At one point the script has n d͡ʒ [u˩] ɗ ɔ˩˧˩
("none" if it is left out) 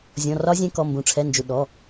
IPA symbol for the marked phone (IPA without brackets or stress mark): u˩